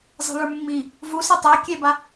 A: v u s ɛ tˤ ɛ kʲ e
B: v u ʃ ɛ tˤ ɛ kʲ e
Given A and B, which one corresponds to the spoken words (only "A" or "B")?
A